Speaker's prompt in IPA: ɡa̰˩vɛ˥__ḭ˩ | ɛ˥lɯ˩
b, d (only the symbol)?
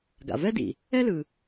d